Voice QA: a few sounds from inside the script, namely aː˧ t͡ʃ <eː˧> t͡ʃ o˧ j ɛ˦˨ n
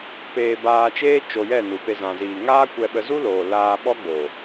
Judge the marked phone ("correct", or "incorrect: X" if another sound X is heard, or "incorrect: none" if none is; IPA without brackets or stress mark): incorrect: eː˦